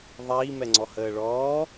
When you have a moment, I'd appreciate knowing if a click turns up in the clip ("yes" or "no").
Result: yes